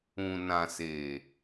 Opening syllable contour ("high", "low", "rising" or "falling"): low